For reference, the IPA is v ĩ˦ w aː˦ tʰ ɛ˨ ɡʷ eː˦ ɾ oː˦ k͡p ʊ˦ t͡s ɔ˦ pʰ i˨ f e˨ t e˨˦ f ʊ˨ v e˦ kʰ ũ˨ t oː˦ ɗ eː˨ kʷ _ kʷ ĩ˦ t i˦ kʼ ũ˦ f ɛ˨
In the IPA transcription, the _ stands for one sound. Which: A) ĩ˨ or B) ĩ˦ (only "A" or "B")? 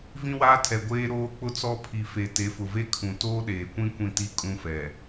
B